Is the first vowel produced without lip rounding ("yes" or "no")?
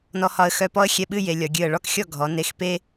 no